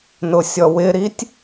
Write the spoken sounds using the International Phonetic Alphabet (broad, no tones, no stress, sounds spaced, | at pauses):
n ʊ sʲ ɔ w ɪ ɾ i tʲ